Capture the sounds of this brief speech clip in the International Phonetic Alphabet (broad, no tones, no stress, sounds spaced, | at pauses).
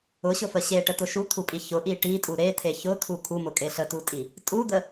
ʊ ɕ ʊ f ə ɕ e ʈ ə t̪ ʊ ʃ u t̪ʰ u pʼ i ç ʊ ʔ i ʈ i tʼ u ɾ e t̪ʰ e ç ʊ t̪ʰ u kʰ u m ʊ kʼ e ɬ ə t u tʼ i | tʼ u d̪ ə